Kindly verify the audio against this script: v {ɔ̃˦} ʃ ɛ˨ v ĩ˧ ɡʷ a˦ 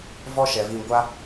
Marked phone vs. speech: incorrect: ɔ˦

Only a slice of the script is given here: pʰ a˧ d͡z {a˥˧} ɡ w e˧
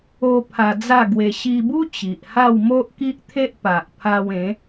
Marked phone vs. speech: correct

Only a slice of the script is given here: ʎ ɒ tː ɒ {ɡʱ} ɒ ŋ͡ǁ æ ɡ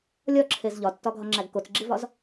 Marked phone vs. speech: correct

